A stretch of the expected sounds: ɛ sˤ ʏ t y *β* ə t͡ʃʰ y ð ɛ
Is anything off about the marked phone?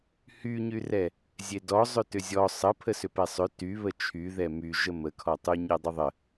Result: no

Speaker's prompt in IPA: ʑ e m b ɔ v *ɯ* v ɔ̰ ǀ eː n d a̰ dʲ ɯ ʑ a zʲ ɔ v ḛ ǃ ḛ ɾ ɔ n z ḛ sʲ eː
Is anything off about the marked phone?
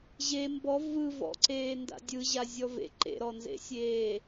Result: no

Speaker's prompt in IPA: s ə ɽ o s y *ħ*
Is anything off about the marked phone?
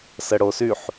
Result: no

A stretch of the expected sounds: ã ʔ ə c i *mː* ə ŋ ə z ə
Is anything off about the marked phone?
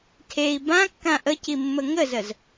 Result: no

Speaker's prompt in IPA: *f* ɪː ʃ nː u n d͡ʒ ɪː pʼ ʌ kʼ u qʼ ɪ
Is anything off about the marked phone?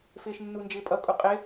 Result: no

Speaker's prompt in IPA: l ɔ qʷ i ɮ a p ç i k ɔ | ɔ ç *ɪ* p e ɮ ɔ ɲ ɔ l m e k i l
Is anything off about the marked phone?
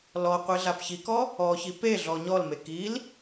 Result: yes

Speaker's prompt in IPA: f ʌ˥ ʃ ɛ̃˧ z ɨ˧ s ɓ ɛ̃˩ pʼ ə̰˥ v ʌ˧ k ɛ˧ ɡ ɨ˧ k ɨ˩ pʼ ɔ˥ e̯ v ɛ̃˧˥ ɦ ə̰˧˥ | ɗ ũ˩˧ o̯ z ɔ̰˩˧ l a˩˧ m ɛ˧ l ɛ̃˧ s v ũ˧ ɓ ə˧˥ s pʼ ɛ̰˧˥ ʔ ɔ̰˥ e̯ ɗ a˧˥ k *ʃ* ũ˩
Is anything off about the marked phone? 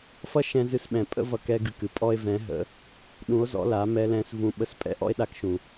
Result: no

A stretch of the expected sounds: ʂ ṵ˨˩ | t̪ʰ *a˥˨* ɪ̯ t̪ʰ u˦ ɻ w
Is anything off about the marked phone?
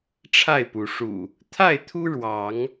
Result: no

